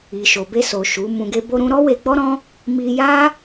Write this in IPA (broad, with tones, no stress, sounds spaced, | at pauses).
i˨ ʃ o˨ b e˧ s o˨ ʃ u˨˦ m ũ˧ ɡ e˦ b o˦ ɾ ũ˦ ɾ ɔ˦ w e˧ ɡ͡b ɔ˦ ɾ ɔ̃˦ | m i˧ j a˦